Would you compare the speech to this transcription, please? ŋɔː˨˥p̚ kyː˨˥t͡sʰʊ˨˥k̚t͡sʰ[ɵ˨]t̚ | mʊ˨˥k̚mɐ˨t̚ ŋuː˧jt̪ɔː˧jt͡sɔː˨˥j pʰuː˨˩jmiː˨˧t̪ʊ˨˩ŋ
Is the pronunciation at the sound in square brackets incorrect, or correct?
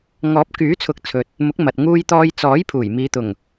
correct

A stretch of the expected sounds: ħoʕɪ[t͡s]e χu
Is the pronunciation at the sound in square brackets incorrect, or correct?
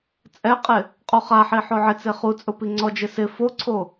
correct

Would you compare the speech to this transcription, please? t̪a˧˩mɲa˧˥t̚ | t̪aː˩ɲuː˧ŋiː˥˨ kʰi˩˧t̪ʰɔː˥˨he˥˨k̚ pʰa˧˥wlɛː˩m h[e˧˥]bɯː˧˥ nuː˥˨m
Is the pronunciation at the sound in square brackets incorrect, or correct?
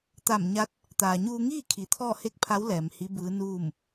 incorrect: i˧˥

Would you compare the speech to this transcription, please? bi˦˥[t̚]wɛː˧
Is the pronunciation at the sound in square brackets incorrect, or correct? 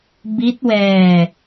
correct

